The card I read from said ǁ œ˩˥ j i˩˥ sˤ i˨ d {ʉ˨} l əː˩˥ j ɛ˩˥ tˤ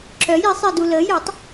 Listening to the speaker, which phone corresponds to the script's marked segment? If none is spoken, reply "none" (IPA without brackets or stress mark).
u˨